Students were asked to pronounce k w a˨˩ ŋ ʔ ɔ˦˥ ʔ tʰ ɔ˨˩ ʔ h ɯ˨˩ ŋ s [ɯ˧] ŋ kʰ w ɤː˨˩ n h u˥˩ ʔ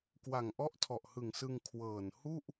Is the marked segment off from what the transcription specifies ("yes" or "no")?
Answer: no